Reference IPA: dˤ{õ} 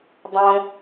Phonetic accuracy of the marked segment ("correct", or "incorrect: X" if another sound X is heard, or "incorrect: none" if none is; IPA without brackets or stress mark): correct